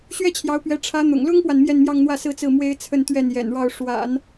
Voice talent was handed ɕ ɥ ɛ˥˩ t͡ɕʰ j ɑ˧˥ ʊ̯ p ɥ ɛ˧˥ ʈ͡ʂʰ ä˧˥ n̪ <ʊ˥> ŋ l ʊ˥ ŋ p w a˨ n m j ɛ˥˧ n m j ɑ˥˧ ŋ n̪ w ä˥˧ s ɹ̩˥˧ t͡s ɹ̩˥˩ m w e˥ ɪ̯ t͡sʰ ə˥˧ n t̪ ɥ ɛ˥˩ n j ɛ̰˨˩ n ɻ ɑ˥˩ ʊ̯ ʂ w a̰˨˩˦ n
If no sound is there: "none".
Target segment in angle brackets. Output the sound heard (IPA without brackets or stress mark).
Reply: ʊ̰˨˩